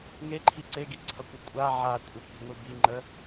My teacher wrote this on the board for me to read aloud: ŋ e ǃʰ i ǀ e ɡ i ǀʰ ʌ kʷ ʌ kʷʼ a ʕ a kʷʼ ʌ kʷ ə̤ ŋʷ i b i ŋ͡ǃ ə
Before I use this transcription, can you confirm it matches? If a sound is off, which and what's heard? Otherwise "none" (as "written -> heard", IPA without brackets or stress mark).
none